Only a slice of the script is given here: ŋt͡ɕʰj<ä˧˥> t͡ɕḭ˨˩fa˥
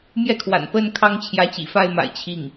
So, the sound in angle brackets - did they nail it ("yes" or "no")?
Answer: yes